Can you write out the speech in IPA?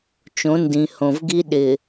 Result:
t͡ʃ õ˨˦ n d ĩ˨ h õ˨ v ɡ i˦ ɗ ɪ˨

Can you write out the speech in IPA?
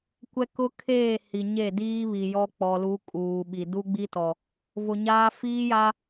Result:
kʷ ɛ˦ k ʊ˦ kʰ eː˦˨ h i˨ ɲ e˦˨ d iː˦ β i˨ j ɔ˦ k͡p ɔ˨ l u˨˦ kʼ uː˨ ɓ i˨ d u˦ ɡ͡b i˦ t ɔ˨ | v ʊ˨ ɲ aː˦ f iː˦ j a˦

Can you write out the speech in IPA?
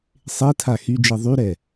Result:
sˤ e tʰ a x y d͡ʒ i ðˤ y ɾ ɛ

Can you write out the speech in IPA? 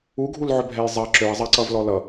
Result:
u ɡʱ u l ʕ ø bʱ ɛ j zˤ ɜ ǁ ø i̯ zˤ ɜ ǀ ʌ v l ɔ l ʌ

